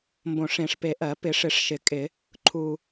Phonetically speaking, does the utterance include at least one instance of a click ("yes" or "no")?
yes